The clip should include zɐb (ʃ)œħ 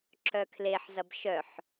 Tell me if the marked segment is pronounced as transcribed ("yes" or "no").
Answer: yes